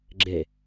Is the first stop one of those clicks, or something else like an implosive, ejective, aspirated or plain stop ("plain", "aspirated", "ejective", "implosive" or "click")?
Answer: click